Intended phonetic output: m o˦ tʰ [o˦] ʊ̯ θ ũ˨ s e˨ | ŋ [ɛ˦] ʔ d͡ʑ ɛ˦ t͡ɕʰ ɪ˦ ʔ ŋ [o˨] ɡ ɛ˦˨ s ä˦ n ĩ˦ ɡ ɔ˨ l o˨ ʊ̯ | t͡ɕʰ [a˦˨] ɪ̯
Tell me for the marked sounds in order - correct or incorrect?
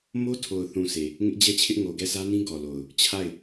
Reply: incorrect: o˨, incorrect: ɪ˦, correct, correct

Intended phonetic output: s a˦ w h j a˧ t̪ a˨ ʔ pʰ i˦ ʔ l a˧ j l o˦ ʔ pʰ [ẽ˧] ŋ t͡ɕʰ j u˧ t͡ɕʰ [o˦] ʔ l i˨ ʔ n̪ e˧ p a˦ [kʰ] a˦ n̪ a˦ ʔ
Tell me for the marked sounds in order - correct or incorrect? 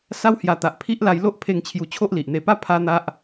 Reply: incorrect: e˧, correct, incorrect: pʰ

